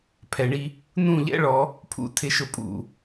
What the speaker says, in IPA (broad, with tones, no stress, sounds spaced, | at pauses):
pʰ ɛ˨ ɳ i˦ | n ũ˦˨ ʎ ɛ̰˦ ɭ ɔ˨˦ | pʰ ṵ˨ tʰ ɪ˨ ʃ ʊ˨ pʼ ṵ˨